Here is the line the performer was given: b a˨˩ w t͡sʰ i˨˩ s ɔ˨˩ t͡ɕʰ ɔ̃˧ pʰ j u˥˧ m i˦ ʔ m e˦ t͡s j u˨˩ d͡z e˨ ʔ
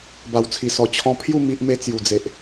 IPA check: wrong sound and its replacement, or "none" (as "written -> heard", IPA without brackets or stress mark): none